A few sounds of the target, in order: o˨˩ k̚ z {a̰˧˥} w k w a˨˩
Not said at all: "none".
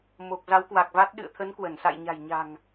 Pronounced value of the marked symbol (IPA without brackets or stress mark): a˨˦